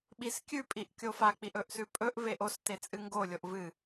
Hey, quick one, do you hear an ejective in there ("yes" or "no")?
yes